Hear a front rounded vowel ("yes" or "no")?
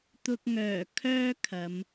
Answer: yes